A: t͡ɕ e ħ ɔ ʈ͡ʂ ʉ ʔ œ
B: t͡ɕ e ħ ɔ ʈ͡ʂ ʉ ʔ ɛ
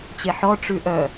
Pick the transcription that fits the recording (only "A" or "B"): A